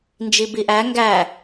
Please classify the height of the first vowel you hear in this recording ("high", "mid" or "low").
high